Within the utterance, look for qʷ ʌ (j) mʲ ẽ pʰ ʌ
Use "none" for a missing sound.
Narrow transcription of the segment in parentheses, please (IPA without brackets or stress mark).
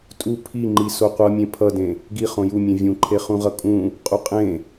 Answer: none